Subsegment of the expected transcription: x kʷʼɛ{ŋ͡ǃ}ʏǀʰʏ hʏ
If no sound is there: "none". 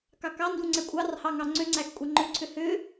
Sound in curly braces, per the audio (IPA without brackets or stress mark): ŋ͡ǃ